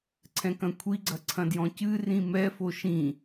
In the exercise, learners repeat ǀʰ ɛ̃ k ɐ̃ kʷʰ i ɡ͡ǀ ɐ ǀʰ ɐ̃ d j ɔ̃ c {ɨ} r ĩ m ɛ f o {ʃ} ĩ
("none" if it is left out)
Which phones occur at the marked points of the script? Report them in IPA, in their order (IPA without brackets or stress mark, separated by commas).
ɨ, ʃ